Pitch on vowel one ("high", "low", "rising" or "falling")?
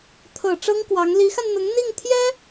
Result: low